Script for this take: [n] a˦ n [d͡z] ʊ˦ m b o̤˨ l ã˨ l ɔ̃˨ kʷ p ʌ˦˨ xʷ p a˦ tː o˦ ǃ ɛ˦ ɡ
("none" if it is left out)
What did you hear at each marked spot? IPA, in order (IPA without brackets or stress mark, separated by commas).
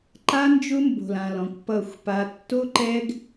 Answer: ǃ, d͡ʒ